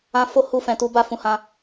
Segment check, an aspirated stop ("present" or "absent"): absent